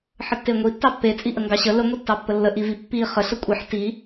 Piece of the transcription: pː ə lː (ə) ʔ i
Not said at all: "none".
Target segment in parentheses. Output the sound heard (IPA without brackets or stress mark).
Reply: ə